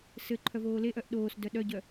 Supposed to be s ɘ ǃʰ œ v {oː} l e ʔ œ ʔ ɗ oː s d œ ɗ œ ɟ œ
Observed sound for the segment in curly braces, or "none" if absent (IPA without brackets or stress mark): oː